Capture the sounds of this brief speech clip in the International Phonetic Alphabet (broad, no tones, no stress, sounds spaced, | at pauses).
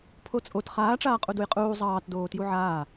pʰ o t͡sʼ o t χ aː ʈ͡ʂ aː qʼ u d u j qʼ uː zˤ ɑː t d oː t j u ʕ aː